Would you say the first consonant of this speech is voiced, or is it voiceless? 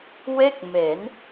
voiced